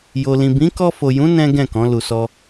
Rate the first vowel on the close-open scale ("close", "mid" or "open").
mid